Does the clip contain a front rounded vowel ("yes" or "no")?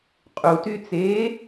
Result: yes